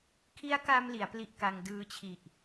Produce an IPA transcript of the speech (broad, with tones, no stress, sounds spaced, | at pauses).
kʰ i˦˥ a̯ k a˧ m l i˩˦ a̯ p l i˦˥ ʔ k a˧ ŋ d ɯː˦˥ t͡ɕʰ i˨˩ ʔ